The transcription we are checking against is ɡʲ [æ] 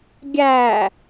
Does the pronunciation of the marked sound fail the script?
no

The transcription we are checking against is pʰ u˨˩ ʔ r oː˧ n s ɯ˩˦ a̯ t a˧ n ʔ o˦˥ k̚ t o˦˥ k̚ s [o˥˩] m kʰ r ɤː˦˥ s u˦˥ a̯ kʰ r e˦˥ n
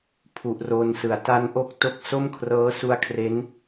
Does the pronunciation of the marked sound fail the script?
no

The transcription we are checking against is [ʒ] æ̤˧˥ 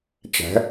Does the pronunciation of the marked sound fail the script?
yes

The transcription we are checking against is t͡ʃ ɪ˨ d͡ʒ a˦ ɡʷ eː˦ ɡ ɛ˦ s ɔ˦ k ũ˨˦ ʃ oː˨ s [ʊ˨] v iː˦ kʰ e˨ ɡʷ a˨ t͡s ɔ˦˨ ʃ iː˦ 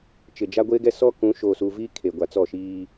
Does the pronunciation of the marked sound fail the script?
yes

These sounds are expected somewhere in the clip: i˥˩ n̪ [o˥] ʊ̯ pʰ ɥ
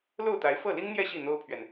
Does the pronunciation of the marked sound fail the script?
no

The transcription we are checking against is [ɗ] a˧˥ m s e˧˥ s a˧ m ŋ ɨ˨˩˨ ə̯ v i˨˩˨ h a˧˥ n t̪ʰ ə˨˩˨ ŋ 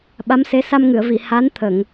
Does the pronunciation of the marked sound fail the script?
yes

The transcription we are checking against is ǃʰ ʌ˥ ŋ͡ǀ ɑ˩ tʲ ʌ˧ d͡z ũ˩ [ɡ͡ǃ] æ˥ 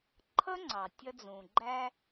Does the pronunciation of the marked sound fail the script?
no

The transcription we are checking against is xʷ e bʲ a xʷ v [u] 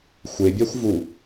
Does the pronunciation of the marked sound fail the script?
no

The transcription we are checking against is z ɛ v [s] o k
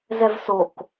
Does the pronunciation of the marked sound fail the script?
no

